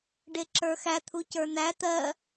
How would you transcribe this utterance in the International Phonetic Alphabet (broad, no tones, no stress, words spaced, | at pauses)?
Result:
ɖeǁə˞xæ t̪ʰucə˞n̪æ t̪ɜ